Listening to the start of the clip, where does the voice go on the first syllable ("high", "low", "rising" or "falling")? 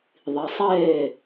low